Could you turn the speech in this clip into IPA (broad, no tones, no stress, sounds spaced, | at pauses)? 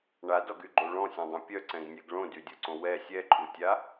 ɳ a d ɔ ɡ y ɡ͡ǃ o ɭ ɔ̃ sʲ ɛ̃ dˤ õ pʲ œ ǀ ɛ̃ ɡ nʲ ɛ ɡ ɭ õ d y dʲ o ǀ õ w ɛ sʲ ɛ ǃʼ u tʲ a